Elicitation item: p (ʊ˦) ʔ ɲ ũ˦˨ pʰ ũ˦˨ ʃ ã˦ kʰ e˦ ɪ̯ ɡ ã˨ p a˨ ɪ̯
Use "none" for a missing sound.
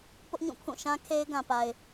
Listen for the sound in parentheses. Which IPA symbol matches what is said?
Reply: ʊ˦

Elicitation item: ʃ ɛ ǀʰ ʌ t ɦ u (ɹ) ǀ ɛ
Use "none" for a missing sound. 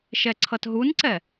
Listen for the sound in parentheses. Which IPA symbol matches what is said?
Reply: n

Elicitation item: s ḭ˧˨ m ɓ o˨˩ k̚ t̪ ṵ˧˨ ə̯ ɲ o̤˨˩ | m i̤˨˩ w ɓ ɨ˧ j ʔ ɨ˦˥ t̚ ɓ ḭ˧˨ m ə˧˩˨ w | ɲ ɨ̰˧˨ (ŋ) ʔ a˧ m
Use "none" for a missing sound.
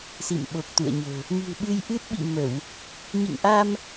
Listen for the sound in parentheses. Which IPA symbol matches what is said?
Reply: ŋ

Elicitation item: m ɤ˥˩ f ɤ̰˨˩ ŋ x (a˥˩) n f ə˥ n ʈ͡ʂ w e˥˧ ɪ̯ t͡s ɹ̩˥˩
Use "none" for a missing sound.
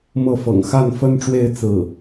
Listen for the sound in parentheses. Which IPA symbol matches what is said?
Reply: a˥˩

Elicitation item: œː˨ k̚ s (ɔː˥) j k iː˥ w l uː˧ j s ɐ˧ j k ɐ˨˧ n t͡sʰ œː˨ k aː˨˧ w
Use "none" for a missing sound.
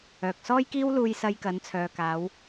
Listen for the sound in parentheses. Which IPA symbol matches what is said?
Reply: ɔː˥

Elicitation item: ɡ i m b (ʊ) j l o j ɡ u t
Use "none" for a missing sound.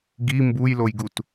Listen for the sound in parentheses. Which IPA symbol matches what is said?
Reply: u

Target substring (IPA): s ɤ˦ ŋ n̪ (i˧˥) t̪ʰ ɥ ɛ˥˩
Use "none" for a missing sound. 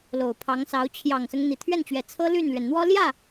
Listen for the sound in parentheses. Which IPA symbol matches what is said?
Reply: i˨˩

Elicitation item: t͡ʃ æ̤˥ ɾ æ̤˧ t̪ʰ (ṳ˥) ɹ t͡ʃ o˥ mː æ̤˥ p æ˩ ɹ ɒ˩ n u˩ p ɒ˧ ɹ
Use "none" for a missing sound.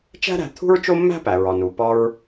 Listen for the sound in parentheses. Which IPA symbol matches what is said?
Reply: ṳ˥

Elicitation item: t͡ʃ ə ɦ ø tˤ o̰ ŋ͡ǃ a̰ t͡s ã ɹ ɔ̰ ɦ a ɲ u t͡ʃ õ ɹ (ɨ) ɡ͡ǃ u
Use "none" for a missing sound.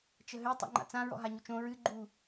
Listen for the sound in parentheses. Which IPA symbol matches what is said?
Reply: ɨ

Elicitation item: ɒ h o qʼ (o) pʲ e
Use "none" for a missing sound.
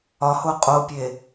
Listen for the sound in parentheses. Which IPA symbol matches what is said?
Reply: o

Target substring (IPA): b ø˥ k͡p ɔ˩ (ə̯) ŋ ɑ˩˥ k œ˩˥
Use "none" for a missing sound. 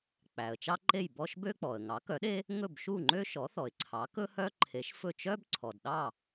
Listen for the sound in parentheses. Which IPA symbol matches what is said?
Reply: ə̯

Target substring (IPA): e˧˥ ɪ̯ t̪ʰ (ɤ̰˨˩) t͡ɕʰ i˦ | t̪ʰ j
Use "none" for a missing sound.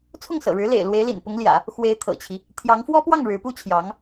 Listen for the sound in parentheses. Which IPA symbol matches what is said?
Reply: ɤ̰˨˩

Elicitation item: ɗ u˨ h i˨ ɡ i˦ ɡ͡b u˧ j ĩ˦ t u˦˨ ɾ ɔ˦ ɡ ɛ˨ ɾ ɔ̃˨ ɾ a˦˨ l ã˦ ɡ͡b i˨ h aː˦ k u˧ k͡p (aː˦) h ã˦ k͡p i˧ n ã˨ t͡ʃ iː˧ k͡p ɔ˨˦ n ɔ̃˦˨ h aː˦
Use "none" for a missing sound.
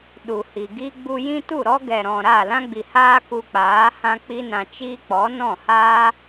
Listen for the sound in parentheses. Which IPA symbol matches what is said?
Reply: aː˨˦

